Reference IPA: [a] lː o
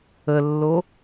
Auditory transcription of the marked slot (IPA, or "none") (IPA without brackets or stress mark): ə